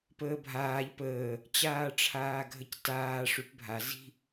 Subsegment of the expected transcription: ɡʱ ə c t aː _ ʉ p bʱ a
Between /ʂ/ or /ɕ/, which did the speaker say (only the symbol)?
ʂ